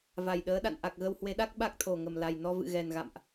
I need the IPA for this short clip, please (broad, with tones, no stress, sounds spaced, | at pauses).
v a˨˩ j ɗ əː˨˦ ɗ a̰˧˨ n ʔ a˨˩ k̚ ɣ ə˧ w h w e˨˦ ɗ a˦˥ k̚ ɓ a˦˥ k̚ t̪ʰ o˨˩ ŋ ə˨˩ m l a˨˩ j n ɔ˧ v ɨ̰˧˨ ɣ ɛ˨˩ n ɣ a̰˧˨ m ʔ